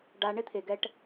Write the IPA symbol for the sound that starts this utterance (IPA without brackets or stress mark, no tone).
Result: ɖ